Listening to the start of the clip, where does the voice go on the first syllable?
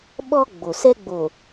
high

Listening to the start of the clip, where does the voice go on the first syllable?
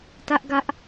high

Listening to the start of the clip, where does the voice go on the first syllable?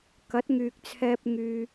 rising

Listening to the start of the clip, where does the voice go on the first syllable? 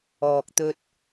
low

